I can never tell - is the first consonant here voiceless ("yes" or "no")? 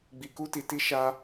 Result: no